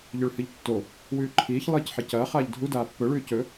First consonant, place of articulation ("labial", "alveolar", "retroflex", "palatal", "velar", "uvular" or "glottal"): palatal